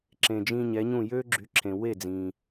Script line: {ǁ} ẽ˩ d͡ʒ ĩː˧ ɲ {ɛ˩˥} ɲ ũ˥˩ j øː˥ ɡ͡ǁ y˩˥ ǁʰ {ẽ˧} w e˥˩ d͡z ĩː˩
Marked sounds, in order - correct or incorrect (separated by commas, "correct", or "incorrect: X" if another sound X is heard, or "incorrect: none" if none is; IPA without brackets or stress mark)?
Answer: correct, correct, incorrect: ẽ˩